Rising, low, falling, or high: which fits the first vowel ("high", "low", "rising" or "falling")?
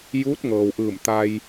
rising